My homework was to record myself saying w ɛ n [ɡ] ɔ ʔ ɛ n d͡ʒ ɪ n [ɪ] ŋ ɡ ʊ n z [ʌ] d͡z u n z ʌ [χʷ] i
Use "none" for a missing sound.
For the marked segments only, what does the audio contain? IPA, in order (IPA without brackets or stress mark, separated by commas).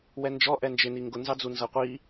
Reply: d͡ʒ, i, ɑ, qʷ